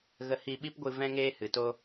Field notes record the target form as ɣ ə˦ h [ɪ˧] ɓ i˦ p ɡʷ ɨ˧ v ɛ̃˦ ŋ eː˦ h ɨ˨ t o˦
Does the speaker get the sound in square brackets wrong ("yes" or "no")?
yes